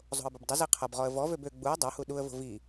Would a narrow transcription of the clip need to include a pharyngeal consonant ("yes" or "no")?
no